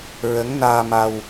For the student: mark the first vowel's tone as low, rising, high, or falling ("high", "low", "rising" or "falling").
rising